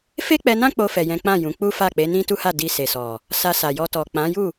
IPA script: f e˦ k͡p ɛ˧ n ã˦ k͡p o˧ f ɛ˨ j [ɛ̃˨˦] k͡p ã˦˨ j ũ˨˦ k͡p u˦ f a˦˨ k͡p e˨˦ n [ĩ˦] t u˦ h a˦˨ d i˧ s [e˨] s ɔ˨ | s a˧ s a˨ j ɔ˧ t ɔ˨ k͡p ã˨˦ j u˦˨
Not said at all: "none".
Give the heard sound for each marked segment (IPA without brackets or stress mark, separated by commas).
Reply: ɛ̃˨˦, ĩ˦, e˨